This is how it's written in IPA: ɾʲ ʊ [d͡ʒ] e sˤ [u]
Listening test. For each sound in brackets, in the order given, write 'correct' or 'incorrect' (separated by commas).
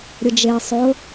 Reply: correct, incorrect